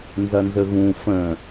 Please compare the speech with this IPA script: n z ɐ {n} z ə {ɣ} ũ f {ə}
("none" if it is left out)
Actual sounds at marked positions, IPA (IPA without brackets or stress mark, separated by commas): n, ɣ, ə̃